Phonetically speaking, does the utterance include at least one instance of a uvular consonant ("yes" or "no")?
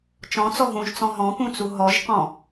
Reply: yes